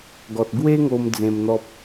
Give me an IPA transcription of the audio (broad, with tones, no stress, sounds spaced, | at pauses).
ɡ ɔ˨ t̚ ɡ w e˦ ŋ o˧ m d͡z ẽ˧ m n̪ ɔ˦ p̚